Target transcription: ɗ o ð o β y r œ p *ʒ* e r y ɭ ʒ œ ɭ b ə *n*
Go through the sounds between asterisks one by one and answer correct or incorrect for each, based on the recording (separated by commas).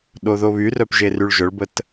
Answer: correct, incorrect